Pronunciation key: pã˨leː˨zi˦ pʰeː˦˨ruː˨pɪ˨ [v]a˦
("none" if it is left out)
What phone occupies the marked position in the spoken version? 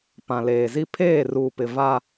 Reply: v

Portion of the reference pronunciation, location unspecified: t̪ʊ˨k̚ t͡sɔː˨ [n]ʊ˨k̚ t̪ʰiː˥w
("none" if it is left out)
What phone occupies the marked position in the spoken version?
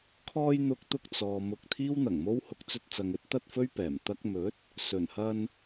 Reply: m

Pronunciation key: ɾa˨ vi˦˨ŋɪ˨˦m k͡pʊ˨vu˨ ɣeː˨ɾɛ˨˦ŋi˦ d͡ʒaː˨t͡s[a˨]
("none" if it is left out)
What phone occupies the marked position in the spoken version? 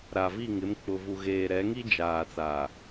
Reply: a˨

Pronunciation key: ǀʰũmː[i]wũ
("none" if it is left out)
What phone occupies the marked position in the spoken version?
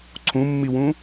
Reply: i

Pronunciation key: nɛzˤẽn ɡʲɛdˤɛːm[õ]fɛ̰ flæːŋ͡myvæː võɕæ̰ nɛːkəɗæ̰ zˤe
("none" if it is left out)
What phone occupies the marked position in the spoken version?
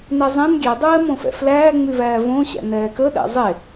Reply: õ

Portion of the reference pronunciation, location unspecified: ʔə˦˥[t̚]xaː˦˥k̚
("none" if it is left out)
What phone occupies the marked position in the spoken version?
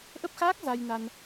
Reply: p̚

